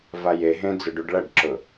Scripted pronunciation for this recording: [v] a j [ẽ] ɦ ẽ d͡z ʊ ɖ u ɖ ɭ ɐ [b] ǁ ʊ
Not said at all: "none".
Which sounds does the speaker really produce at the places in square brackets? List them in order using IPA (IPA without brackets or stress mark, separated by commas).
v, e, ɖ